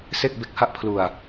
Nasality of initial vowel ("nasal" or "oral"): oral